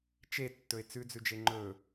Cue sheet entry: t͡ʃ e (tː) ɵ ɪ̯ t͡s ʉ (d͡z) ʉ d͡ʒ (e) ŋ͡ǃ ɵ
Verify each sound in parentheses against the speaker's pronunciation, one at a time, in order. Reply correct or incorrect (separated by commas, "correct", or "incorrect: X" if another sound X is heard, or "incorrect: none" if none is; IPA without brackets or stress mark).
correct, correct, correct